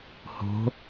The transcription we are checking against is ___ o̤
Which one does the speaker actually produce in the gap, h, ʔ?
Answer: h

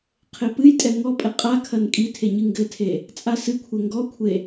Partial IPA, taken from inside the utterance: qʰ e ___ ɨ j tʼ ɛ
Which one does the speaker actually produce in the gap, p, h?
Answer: p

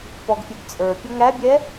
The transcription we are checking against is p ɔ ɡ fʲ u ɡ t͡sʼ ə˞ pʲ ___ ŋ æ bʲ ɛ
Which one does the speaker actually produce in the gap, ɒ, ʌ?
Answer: ʌ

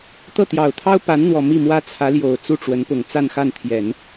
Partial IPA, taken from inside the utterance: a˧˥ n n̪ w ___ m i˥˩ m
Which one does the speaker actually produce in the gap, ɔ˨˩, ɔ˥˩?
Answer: ɔ˨˩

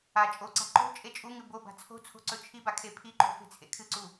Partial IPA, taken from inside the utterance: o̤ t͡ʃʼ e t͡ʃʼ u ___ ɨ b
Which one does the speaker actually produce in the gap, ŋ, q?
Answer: ŋ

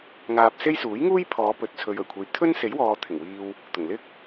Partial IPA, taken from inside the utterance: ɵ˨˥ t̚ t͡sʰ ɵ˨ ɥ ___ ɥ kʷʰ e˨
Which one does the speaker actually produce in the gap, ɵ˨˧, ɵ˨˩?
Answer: ɵ˨˩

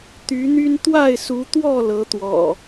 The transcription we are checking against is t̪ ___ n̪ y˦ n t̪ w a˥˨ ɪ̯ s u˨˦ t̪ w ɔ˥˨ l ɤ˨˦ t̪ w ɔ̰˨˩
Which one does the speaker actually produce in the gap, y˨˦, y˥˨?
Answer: y˨˦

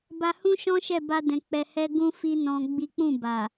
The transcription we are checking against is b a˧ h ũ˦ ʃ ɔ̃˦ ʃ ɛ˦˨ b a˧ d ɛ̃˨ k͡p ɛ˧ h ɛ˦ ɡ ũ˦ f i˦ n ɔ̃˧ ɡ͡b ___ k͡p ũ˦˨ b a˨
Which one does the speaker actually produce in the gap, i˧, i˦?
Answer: i˦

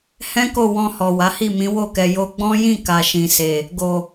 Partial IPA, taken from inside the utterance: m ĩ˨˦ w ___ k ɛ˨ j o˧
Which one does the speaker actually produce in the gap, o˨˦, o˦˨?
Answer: o˦˨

